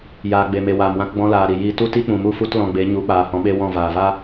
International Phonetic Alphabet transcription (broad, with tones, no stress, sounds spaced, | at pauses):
j aː˨ ɡ͡b e˨ m e˨ w aː˨ m w ã˧ k ɡ͡b ɔ̃˧ l aː˨ ɾ i˨ j iː˧ t u˦ t i˦ k͡p ũ˨ m u˦˨ f u˦ t l ɔ̃˧ ɡ͡b e˨˦ ɲ u˨˦ k͡p aː˨ h ɔ̃˨˦ ɓ e˦ w ɔ̃˦˨ v aː˨ v a˦